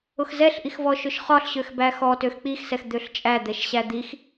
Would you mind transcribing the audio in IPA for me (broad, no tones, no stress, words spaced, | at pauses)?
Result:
ʊxzɛɬʔix vɔʃʊʃχɒɬɕøx bæxɔ tøxk͡pixsɛx d̪øɬt͡ʃʼæd̪ɛʃ ɕæd̪ix